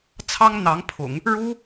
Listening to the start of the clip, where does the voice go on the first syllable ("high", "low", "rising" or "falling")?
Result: high